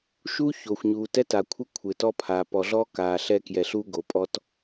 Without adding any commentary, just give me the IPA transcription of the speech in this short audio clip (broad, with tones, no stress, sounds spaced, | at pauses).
ʃ u˦ ç o˨ xʷ ɲ uː˨ t ɛ˦ t a˨ kʷʰ ɪ˦ kʷʰ ɪ˨ t ɔ˦ pʰ a˨ p ɔ˨ ɮ ɔ˦ k aː˨ ɬ ɛ˦ k j ɛ˨ ɬ u˦ ɡ o˨ pʼ ɔ˦ t